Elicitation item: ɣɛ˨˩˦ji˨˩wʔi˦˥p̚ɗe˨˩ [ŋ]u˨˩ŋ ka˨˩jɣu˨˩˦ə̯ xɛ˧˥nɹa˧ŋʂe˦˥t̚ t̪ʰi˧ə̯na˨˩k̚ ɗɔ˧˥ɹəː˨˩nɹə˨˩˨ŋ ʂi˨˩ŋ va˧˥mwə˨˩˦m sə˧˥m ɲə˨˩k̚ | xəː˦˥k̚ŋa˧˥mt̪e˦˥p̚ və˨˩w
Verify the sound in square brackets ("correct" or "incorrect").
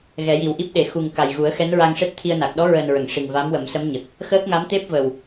incorrect